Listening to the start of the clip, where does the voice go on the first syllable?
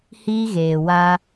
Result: high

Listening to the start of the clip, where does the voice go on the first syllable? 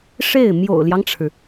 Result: falling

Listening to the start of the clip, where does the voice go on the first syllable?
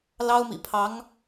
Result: high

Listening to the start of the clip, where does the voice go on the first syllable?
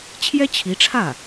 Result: high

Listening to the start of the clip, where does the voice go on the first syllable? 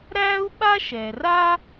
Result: high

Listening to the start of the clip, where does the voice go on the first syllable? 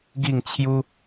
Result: falling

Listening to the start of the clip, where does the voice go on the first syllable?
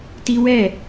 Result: high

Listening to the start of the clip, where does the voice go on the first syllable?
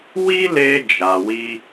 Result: high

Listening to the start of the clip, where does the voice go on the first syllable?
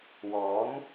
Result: rising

